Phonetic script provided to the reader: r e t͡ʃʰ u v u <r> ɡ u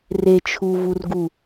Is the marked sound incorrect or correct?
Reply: correct